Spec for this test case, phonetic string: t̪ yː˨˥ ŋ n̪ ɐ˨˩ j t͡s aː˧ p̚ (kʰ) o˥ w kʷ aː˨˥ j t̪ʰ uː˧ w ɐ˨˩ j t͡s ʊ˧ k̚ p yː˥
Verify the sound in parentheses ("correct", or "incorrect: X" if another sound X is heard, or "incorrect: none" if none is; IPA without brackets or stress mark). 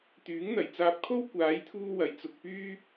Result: correct